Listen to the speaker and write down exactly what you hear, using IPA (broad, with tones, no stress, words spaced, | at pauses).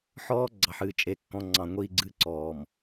ħɔː˦ ɡ͡ǀɑ˨ħɨː˨t͡ʃʼe˨kːɔ̃˨ ŋ͡ǀɑ̃˨ŋʷiː˨ɡ͡ǀɨ˨ǀɔː˨m